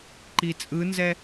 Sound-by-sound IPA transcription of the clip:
ǃ i t͡sʼ ɯ n z ɛ

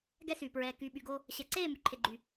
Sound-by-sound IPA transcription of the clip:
ɡ ɛ˦ s yː˨ p ɹ ɛː˨ k yː˨ ɓ y˨ ɡ o˧ | ɕ ɛ˨ ǀ eː˦˨ m y˨ ǃʰ e˨ ɡ͡ǃ y˨

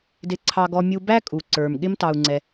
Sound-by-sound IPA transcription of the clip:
d ɪ˧ ǀʰ ɑ˧ ɡ ɔ˧ mʲ u˧ b æ˦ kʼ u˨ ǀ ə˞˨ m ɠ ɪ˦ m t ɑ˧ u̯ ŋ͡ǀ ɛ˧

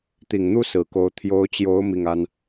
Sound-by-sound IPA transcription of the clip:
t̪ i˨˩ ŋ n̪ u˥ s ɹ̩˨˩ k o˧˥ ʊ̯ t̪ʰ j o˧˥ ʊ̯ t͡ɕ j o˧˥ ʊ̯ m i˥˩ ŋ a˥ n

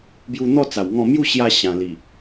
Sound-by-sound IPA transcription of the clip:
b j u˧ n̪ ɔ˥˧ t͡s a˨˩ w ŋ ɔ̃˥˧ m j u˥˧ ɕ j a˧ ɕ ã˨˩ l i˨˩

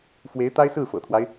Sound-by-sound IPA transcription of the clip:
f w e˧˥ ɪ̯ t̪ a˥ ɪ̯ s ɹ̩˥˩ f ɤ̰˨˩ t̪ʰ w a˦ ɪ̯

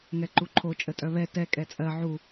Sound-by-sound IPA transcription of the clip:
ŋ ɛ ǃ u ǃʰ o t͡ʃʼ ə tʼ œ β ɛ t ɛ kʼ ɛ t͡sʼ ɜ ʕ u

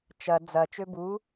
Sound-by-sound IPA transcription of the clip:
t͡ʃ ɐ d͡z ɐ t͡ʃ ø b u

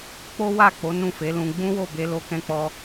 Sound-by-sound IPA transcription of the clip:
k͡p o˦ w a˦˨ k͡p o˨˦ n ũ˦˨ f e˨˦ l ũ˧ ɡ͡b ũ˦ w o˦˨ b e˧ l o˦ k ɛ̃˦ k͡p ɔ˦

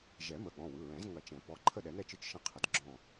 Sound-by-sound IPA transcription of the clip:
ʒ ɛ˨˩˦ m ə˩˧˩ ɠ ɔ̃˩˧˩ w ɯ˩˧˩ ɹ ɛ̃˨˩˦ z ŋ ɐ˨˩˦ t͡ʃ ɛ̃˨˩˦ p ɔ˩˧˩ ǃʰ ə˥˨ ɗ ɛ˨˩˦ n ɛ˥˨ t͡ʃ ɯ˥˨ t͡ʃ ʃ ɐ̃˥˨ qʰ ə˨˩˦ d ɡ͡ǁ ɔ̃˥˨

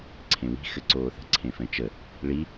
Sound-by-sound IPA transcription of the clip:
ǀʰ ẽ w i̤ x ɘ ǀ oː θ ə̤ ǀʰ ẽ f ɛ̃ t͡ʃ ə | ɭ i

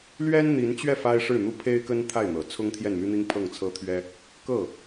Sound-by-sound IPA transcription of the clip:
l ɥ ɛ˥ n n̪ i˧˥ n t͡ɕ ɥ ɛ˥˩ f a˥ ɪ̯ ʂ ɻ̩˥˩ n̪ u˥ pʰ e˥ ɪ̯ k ə˥ n t̪ʰ a˥˩ ɪ̯ n̪ ɤ˨˩ t͡sʰ ʊ˥ ŋ t̪ʰ j ɛ˥˩ n m y˥ n̪ i˥ ŋ pʰ ɤ˥˩ ŋ t͡sʰ ɤ˥ t̪ʰ ɥ ɛ˥ | k ɤ˥˩

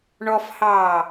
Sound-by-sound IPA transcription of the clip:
ɳ ɔ f h ɑː

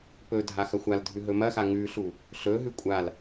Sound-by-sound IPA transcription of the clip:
p ɵ dʱ a x ɐ xʷ a l dʱ ʉ ɦ ɵ m ɐ x a ŋ ʉ ɬ u | ɬ ɵ ɦ ʉ kʷʼ a l

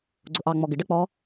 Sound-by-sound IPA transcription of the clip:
ɡ͡ǀ ʊ ʔ ɑ ŋ͡m ɔ ɡ ɪ ɖ ə k͡p ɔ

